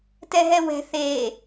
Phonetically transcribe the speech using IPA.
tɛɦɛwɛ̤ θe

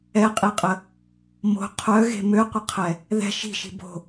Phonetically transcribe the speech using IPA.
ɛqʼiqʼə | mo̤ qʰœɣe̤ møqʷəqʰɛ | ðɛ̤ ʃi̤ʃi̤ bo̤

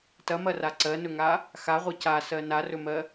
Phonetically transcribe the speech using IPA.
tɐmɐra ǀɜnɵŋa | xaʁʷi casɜ narɵmɜ

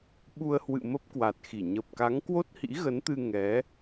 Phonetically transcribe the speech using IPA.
ɓu˧ə̯hwɨ̰˧˨ mə˦˥p̚kwa˨˩t̚xi˧˩ ɲə˨˩p̚ka˨˦ŋ kwo˦˥t̚hḭ˧˥ɣə˨˦nt̪ɨ˧ ŋɛ˨˦

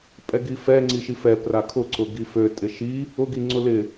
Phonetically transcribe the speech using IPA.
pʼɛɡifɛ ŋ͡ǀiʃifɛ prakʰʊ ǀʊɡifø tʼɪʃi | ʊ ɡiŋ͡ǀʊlɪ

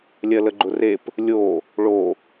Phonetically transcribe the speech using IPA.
lʲɜləɡ͡ǃʊrep | lʲo | ɭo

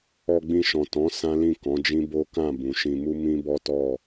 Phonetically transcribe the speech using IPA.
ɔ˧ɡ͡bĩ˧ʃɔ̃˨ tɔ̃˨˦ sã˦lĩ˦˨ kɔ̃˨˦d͡ʒĩ˦ bo˦kã˦˨ bũ˨ʃĩ˧mu˦ mĩ˦bɔ˦tɔ˦˨

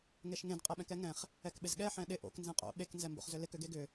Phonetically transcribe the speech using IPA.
ŋeʃŋẽd qʼɛɓɛ̃kɛŋɛ̃χ | ɛkɓɪzɠɛ ħɛ̃ɗɪ ʔo̰k nzẽqʼo̰ ɓek nzɛmbo̰χzʏlɪk ʏɡeɡʏ

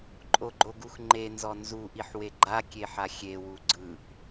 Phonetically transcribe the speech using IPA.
ǃʼoɡ͡ǃoɡuxŋ͡ǃe nzɔnzu ʔiħweɡ͡ǃa kʲeħaxʲe wuɡ͡ǀɯʔ

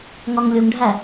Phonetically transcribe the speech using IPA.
ŋɒŋlʲuŋɖʱæ

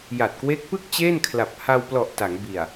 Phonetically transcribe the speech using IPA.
ja˨˩t̚kwe˦˥k̚pɯ˥˩k̚ t͡ɕe˥˩nkʰla˨˩p̚ ha˧wplɔ˨˩ʔ ta˩˦ŋbi˨˩a̯

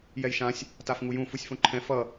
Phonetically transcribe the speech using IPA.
jɛjʃãsʲ | tafŋujũ fusʲfõǃʰɛ̃ fʌ

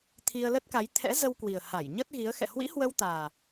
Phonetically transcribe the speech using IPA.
t̪ʰi˧ə̯lə˦˥t̚ka˨˦j t̪ʰɛ̰˧˥zə˧wkwi˨˩ə̯ ha˧˩jɲə˦˥t̚ɣi˨˦ə̯ xɛ̰˧˨hwḭ˧˥hwə˧w t̪aː˨˩

